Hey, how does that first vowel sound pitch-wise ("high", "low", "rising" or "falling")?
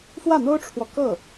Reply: falling